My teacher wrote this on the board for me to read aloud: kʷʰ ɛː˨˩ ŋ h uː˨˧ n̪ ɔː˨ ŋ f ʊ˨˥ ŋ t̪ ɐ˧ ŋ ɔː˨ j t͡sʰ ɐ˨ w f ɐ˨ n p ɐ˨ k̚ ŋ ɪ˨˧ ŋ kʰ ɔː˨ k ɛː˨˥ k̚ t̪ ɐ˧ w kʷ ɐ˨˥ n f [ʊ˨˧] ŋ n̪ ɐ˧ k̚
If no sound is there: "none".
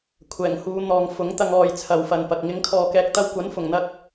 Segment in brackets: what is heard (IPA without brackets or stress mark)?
ʊ˨˩